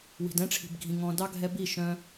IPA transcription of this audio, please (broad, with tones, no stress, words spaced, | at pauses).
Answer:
wi̤˨dɛ̃˦ʈ͡ʂʰi̤˨bɡʱĩ˨ ŋɔ̃˨dɑ˦ ɡʱɛ˧bi˦˨ʃœ̃˧